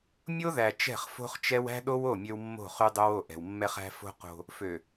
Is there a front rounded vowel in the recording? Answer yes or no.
yes